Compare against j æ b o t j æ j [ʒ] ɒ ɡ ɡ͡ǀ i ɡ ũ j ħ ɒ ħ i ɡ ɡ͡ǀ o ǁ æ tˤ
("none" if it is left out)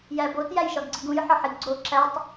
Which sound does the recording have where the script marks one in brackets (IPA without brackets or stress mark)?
ʃ